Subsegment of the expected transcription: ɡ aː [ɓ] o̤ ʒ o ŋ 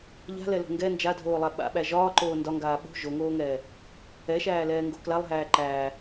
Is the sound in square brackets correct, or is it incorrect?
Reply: correct